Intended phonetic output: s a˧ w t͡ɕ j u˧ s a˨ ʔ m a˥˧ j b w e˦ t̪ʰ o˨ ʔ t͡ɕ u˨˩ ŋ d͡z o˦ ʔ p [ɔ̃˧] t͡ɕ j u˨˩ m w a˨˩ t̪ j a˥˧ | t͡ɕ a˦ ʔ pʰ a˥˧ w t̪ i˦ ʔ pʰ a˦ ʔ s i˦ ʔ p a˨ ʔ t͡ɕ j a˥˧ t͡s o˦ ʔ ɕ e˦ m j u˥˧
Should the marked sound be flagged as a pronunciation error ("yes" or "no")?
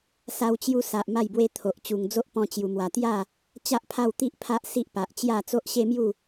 no